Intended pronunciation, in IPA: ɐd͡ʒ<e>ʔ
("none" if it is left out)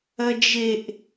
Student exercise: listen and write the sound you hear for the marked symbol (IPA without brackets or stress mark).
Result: e